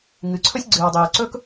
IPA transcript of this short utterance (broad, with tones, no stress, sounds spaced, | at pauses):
ŋ ɨ˩ ǀʰ ɵ˥ sʲ ɡ͡ǀ ɨː˩ w dˤ ɨː˩ ǀ ɵ˥ k